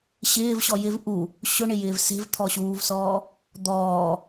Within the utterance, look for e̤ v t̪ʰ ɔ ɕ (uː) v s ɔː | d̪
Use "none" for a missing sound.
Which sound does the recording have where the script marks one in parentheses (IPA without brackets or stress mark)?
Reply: uː